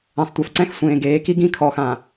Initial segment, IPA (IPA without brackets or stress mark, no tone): ɛ̃